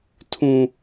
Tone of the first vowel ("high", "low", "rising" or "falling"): low